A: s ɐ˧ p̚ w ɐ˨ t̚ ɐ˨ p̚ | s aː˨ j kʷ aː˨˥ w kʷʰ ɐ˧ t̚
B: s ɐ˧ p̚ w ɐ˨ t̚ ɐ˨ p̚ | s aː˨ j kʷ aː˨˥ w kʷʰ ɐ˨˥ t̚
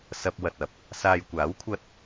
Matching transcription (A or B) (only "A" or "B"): A